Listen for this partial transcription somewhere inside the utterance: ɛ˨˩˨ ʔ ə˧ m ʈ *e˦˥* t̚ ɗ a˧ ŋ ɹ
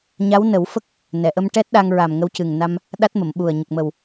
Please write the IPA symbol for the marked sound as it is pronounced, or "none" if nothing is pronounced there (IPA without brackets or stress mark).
ɛ˦˥